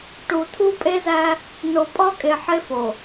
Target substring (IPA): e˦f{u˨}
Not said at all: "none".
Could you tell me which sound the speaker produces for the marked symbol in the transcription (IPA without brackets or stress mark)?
o˨